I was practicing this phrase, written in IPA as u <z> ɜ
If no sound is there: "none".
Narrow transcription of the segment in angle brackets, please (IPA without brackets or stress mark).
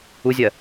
zʲ